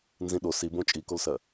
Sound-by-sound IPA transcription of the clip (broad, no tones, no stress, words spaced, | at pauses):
nzĩɗo sibõ t͡ʃʼikolsɜ